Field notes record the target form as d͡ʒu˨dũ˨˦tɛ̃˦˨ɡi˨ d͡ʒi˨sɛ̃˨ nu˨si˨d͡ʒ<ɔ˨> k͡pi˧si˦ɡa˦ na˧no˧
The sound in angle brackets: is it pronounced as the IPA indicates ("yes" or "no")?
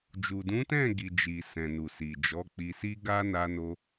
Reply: no